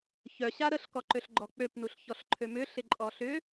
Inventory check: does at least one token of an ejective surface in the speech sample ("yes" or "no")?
yes